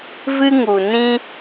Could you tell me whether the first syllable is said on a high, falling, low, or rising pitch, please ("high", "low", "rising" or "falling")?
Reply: high